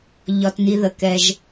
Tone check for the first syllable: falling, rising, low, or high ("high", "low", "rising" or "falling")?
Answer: low